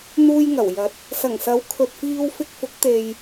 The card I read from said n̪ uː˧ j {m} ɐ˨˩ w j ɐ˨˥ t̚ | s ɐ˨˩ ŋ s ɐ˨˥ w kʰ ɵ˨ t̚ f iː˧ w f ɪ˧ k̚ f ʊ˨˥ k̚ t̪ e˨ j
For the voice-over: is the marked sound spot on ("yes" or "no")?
no